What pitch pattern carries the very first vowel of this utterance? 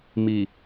low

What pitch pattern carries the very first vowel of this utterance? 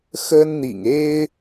high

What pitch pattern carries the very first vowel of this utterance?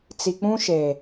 low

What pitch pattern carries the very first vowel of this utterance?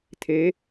rising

